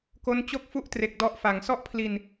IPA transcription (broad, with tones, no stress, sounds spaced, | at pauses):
k o˦˥ n t͡ɕ o˥˩ k̚ f u˥˩ ʔ t r e˨˩ k̚ d ɔ˦˥ ʔ f a˨˩ ŋ s ɔ˥˩ ʔ pʰ l i˧ n